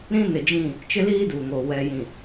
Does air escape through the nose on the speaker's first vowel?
yes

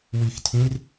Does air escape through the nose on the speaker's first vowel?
no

